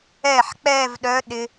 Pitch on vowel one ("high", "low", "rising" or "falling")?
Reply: falling